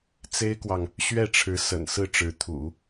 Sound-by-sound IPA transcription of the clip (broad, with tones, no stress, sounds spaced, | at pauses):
t͡s e˥ ɪ̯ k w ɑ˨ ŋ | ɕ ɥ ɛ˥˩ ʈ͡ʂʰ ɻ̩˧˥ s ə̰˨˩ n s ɹ̩˥˩ ʈ͡ʂ ɻ̩˧˥ t̪ʰ ṵ˨˩˦